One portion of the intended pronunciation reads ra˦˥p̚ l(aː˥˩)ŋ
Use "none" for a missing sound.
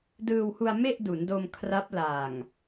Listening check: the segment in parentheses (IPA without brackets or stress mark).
aː˨˩